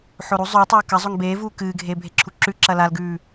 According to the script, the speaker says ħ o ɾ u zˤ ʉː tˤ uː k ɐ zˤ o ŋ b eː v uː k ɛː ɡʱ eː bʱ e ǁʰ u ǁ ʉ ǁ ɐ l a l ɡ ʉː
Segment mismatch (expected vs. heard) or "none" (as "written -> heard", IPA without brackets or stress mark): ɛː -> ɨː